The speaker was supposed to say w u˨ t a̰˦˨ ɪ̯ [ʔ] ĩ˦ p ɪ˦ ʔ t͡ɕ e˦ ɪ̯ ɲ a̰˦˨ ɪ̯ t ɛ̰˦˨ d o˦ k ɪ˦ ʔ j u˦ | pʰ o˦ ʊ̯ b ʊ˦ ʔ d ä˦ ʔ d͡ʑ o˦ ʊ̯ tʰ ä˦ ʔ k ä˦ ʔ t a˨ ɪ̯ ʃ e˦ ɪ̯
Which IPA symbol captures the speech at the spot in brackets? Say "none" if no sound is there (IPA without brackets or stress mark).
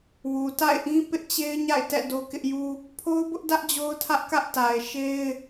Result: ʔ